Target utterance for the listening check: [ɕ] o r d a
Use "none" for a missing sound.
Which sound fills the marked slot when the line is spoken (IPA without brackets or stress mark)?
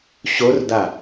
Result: ɕ